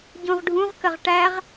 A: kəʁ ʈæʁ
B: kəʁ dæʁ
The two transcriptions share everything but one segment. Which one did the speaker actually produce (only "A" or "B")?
A